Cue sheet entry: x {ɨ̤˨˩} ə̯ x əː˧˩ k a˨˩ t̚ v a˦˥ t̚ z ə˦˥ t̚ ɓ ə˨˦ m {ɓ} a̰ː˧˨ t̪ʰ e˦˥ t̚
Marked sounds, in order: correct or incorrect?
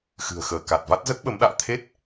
correct, incorrect

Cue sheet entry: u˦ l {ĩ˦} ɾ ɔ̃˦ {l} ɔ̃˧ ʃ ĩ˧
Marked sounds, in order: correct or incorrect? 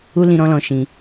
correct, correct

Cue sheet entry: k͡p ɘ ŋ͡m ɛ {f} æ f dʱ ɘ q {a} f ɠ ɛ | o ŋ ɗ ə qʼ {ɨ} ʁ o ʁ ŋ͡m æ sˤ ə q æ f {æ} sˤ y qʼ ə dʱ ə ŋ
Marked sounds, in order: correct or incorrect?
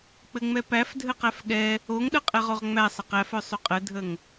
incorrect, incorrect, incorrect, incorrect

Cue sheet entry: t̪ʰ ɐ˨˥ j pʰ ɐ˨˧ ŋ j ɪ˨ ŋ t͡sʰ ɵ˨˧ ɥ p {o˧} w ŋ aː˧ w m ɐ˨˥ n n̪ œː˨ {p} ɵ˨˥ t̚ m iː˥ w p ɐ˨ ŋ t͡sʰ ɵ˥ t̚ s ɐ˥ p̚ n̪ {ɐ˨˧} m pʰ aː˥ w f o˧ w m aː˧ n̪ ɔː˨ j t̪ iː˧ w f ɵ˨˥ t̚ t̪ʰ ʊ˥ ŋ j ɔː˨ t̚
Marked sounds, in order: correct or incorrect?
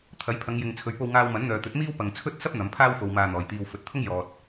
correct, incorrect, correct

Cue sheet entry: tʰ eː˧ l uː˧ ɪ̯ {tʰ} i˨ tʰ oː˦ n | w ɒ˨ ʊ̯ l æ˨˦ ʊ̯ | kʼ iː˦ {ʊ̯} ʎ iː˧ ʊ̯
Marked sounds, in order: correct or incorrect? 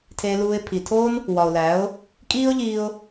incorrect, correct

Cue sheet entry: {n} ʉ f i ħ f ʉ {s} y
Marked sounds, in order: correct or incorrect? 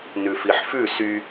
correct, correct

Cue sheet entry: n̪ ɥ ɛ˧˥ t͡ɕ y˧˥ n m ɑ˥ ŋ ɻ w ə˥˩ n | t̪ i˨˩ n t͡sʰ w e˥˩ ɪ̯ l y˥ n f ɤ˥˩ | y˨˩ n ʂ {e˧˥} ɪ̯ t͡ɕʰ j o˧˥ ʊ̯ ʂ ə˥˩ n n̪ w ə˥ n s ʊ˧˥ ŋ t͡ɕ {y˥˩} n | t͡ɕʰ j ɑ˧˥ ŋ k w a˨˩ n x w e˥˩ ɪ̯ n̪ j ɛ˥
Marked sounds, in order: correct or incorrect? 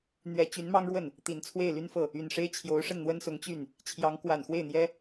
incorrect, correct

